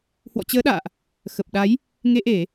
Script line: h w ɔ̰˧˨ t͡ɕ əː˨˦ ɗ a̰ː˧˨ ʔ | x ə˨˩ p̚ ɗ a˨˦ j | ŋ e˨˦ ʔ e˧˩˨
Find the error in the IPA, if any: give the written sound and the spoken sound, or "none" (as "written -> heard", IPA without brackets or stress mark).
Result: none